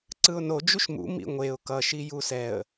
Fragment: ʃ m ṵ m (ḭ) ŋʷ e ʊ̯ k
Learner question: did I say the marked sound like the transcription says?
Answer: yes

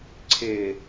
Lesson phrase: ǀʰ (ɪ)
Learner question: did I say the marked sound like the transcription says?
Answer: yes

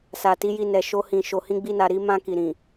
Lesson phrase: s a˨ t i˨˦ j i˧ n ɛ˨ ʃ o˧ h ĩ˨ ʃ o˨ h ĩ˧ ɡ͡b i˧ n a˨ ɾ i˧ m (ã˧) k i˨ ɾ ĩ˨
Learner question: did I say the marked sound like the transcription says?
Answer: yes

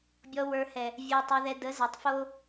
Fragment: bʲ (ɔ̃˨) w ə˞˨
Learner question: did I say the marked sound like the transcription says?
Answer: no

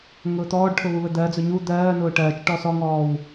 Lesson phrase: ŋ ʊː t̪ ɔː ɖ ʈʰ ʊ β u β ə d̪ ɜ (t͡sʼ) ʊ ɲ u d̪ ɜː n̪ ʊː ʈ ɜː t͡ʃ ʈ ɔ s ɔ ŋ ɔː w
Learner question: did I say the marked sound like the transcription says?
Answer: no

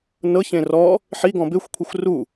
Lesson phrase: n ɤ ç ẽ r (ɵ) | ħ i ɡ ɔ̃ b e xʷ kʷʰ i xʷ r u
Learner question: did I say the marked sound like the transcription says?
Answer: no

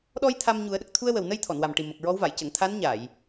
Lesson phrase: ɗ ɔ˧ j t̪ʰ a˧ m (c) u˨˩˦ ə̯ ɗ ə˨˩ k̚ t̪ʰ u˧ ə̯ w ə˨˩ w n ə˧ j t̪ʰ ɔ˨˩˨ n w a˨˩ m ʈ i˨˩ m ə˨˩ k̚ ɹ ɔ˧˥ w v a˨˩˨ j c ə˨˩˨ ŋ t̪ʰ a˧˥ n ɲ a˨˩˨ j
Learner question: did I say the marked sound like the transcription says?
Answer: no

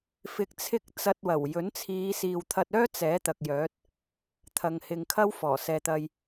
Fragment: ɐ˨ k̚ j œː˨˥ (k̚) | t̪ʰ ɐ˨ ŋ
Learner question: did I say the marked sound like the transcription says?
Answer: no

